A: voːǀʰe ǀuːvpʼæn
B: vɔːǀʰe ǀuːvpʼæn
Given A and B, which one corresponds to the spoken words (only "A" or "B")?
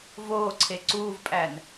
A